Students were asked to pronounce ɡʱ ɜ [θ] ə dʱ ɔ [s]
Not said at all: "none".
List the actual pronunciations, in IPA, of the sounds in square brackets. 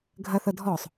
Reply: θ, sˤ

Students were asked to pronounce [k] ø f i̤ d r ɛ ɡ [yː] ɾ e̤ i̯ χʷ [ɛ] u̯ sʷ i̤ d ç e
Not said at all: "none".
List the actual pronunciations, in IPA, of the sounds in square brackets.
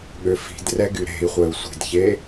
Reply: ɠ, y, ɛ

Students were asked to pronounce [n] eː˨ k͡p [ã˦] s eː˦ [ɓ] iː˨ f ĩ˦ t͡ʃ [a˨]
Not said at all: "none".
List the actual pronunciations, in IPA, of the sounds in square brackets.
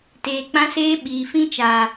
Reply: t, ã˦, ɓ, a˨

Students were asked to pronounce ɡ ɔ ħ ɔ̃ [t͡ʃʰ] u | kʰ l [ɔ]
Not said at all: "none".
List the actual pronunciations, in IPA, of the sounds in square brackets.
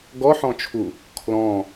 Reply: t͡ʃʰ, ɔ̃

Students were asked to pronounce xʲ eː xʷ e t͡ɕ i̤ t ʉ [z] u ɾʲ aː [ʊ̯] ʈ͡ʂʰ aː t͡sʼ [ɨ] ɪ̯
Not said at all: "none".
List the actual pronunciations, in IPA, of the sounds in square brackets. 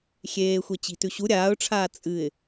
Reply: ɕ, ʊ̯, ɨ

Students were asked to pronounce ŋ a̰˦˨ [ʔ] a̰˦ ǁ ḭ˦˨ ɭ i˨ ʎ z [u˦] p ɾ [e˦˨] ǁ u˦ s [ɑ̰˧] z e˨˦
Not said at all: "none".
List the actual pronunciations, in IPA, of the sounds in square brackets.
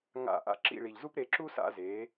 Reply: ʔ, u˦, e˧, a̰˧

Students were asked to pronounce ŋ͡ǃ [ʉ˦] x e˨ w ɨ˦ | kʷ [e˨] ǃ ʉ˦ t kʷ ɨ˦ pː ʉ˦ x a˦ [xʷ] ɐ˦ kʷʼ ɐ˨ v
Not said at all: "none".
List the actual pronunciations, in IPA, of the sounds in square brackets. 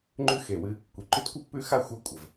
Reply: ʉ˦, i˨, xʷ

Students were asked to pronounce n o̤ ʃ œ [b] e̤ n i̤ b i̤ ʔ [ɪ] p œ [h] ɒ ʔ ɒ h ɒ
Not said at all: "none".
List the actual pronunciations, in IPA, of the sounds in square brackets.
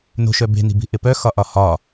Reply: b, ɪ, x

